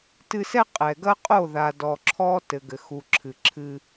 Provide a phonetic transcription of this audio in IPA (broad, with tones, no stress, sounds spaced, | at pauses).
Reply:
t ɨ˦ s ɛ˦ qʼ ɛ˨ ɡ ɐ˦ qʼ o˦˨ ð a˨ d ɔ˨ ǁʰ ɔ˦ t ɘ˨ ɡ ɘ˨ x u˨ ǁʰ ɨ˨ ǁʰ ɨ˦